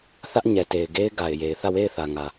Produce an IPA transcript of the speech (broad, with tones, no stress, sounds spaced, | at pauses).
θ ä˦ ʔ ɲ ɛ˨ t e˨ ɪ̯ ɡ e˦ ɪ̯ ɡ a˨ ɪ̯ j e˨ ɪ̯ θ ä˦˨ w e˦˨ ɪ̯ θ ä˨ ŋ ä˨